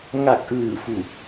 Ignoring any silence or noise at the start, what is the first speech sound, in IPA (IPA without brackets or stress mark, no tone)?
ŋ